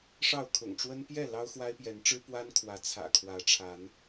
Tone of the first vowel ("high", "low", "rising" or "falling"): falling